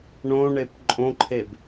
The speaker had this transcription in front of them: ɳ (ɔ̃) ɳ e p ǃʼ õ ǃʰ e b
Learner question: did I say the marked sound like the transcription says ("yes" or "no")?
no